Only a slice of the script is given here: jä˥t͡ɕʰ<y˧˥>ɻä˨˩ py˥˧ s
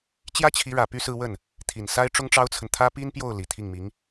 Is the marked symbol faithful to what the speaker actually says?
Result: no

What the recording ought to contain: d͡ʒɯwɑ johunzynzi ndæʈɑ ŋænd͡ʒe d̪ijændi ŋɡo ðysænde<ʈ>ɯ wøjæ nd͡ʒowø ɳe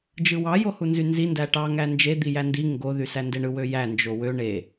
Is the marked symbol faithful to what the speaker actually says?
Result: no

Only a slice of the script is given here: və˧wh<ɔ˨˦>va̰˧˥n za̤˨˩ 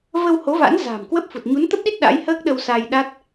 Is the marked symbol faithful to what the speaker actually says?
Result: no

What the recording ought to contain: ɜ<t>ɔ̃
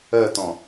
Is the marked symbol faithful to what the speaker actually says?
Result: yes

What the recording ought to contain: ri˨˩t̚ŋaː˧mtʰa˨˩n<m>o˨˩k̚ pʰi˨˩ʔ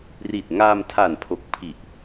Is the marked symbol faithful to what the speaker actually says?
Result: no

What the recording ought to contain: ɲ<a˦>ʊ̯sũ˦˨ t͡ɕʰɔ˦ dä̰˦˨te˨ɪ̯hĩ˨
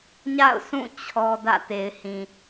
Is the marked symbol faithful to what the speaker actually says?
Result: no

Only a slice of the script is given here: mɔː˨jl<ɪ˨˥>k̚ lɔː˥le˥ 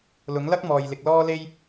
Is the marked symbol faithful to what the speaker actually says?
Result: no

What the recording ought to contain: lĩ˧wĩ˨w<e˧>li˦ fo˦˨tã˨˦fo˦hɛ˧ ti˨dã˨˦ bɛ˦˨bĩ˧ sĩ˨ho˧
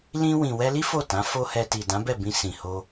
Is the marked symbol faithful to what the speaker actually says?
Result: no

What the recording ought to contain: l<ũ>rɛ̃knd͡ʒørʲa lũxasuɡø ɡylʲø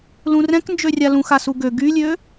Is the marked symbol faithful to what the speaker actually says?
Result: yes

